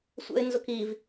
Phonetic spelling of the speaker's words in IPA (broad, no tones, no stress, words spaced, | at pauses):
sʷɛ̰ɪ̯nzʊkiv